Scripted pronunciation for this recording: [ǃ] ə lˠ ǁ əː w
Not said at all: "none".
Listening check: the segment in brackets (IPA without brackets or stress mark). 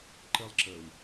ǃ